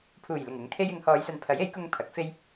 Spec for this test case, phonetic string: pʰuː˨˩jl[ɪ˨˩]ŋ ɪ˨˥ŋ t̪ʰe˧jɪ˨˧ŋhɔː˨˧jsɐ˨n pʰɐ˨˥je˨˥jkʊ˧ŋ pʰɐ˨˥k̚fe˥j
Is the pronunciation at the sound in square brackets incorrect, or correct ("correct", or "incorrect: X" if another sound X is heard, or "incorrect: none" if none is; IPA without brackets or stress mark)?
correct